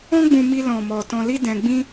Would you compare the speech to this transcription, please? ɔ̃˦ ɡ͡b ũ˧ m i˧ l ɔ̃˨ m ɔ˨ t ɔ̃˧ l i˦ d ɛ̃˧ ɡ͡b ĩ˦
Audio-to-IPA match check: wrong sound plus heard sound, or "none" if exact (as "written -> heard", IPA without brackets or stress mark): none